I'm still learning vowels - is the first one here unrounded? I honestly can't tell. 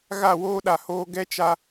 yes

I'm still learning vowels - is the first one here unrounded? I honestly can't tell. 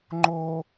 no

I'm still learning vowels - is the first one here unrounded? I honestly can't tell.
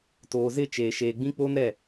no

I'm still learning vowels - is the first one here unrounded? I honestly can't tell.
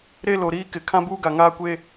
yes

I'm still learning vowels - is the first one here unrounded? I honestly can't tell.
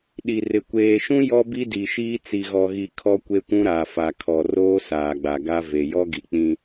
yes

